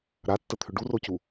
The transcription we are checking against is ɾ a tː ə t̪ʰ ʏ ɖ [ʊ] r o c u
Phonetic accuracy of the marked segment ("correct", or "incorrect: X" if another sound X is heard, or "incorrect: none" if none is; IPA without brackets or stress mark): incorrect: u